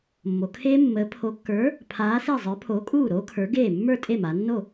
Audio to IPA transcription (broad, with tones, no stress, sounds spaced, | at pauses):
mː o˩˧ kʰ eː˦˥ mː əː˨˥ pʰ o˨˥ kː ə˞˨˥ | pʰ aː˨˥ s e˥˩ zˤ ə˞˨˥ pʰ oː˨˥ kʼ uː˥˩ ɾ o˦˥ kʰ ə˞˨˥ ɡ eː˥˩ mː ə˞˥˩ tʼ e˥˩ m a˩˧ nː o˥˩